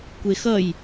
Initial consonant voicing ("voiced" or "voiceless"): voiceless